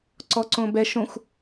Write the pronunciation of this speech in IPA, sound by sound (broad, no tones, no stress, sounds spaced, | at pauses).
ǀ ɔ ǀ õ b ɛ ʃ õ xʷ